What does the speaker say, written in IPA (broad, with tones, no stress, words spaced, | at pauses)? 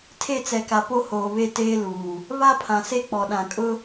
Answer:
tʰe˦˨t͡sɛ˨ka˨ po˦ hoː˨βe˦˨ teː˦ luː˨ | βa˦pʰã˨se˦k͡pɔ˨ ɗã˨kʼʊ˦